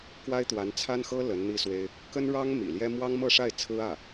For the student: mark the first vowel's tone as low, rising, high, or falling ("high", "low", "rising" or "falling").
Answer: high